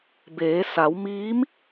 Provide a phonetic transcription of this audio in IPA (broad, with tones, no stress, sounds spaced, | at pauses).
b eː˩˧ s a˩˧ w m iː˧˥ m